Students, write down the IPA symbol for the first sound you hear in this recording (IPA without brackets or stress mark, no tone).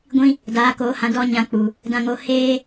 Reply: ɡʷ